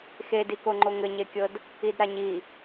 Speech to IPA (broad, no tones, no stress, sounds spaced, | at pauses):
x e d i k o ŋ͡ǃ o ŋ ɘ ɲ e kʲ ɤ d | i d ɾ a ɲ i